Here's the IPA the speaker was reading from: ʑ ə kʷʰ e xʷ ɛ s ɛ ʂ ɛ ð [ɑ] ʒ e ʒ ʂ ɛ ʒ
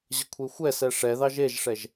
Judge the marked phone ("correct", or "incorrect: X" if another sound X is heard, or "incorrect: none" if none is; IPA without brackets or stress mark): correct